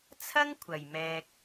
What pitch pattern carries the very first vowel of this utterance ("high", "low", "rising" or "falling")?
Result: high